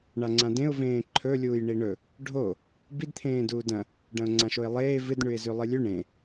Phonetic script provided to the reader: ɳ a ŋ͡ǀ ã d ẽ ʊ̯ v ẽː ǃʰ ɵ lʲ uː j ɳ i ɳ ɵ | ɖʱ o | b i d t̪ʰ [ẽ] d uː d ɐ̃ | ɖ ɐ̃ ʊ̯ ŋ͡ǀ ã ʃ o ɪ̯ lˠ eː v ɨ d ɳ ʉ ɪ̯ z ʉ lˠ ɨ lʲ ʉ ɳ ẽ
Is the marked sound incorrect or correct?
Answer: incorrect